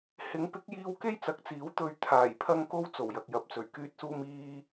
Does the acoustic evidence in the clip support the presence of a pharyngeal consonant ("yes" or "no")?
no